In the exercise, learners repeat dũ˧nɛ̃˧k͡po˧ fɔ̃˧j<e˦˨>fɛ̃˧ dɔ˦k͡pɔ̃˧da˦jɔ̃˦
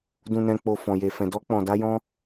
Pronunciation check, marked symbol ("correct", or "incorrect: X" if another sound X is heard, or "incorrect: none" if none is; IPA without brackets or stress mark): incorrect: e˧